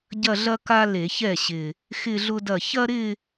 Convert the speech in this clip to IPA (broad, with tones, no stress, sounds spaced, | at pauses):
ɟ ɐ˥˧ ɮ ɐ˥ k a˥ l e˧˩˧ ç ɛ˥˩ ɕ ɪ˨˩ | x ɪ˥˧ ɮ ʊ˥ d ɐ˥˩ ç ɐ˥ ɾ ɪ˥˧